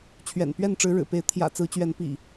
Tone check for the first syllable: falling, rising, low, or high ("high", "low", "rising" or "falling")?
low